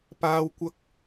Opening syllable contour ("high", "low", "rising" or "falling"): high